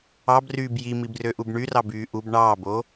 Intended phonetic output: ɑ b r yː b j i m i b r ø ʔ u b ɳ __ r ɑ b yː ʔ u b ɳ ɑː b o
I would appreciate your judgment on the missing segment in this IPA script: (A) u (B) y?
B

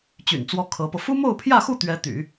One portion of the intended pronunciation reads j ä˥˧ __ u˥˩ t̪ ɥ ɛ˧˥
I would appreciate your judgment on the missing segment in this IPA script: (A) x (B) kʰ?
A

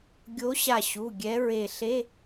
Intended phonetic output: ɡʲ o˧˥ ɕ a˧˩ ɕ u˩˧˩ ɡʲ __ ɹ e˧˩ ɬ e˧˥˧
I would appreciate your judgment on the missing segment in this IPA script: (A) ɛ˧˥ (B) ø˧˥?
A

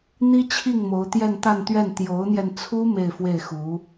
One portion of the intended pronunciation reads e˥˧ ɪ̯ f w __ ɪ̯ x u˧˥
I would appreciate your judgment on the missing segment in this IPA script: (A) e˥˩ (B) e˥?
A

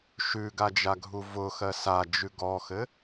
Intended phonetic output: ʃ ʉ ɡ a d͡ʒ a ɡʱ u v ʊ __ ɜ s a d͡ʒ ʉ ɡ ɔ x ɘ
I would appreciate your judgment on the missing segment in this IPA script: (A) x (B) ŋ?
A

